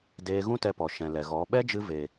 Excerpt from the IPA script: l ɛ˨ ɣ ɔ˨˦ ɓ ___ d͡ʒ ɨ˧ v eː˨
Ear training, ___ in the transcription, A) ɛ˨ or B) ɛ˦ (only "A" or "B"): B